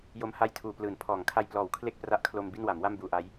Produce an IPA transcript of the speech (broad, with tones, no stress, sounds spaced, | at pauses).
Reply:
j o˦˥ m h a˥˩ j tʰ uː˨˩ p l ɯː˨˩ n pʰ ɔː˩˦ ŋ kʰ a˧ j p l ɔː˩˦ w kʰ l e˥˩ k̚ p r a˦˥ ʔ kʰ l o˧ m b i˥˩ n w a˩˦ m w a˥˩ m b uː˧ ʔ a˦˥ j